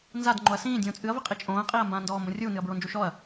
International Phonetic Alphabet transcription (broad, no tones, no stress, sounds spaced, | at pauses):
n z a d ŋ͡ǃ o ɐ̯ s ĩː dʲ õː t͡sʼ ɨ ɐ̯ v i qʼ i t͡ʃʼ õː ɐ̯ qʼ iː ɐ̯ m b ãː n d ɔː m b õ rʲ uː n ɨ ɐ̯ b ɹ o n d͡ʒ u ʃ ɔ ɐ̯